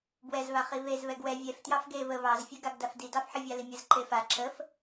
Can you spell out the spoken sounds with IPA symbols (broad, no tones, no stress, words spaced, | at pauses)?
bwɛzβa χiβez βɛɡwɛ vʲɛf tjɑfɡe βə βɑzfʲɛɡaɡ dafdidɑfħə vʲɑlimʲəz ǃefa ǁəf